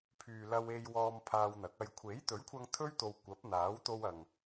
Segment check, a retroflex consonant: absent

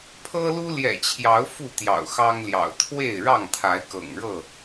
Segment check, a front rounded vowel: absent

